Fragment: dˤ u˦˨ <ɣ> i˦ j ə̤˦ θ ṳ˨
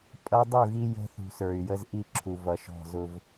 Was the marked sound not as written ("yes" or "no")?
no